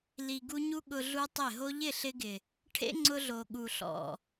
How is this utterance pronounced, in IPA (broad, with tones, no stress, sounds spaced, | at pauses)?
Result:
l i˨ ɡ u˧ ɲ u˦ ɠ ʊ˧ ɮ u˦ tˤ ɪ˦˨ ɦ o˧ ʎ ɪ˦˨ ɬ ɪ˧ ɡ ɪ˨ | ʈʰ ḛ˦ ŋ͡ǀ ʊ˧ ɮ o˨ ɠ u˨ ɬ ɔ̰˨